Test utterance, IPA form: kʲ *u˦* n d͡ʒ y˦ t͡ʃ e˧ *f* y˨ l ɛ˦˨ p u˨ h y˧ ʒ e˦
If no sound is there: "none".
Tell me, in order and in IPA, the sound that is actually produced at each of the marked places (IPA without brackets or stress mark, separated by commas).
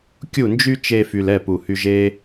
u˦˨, f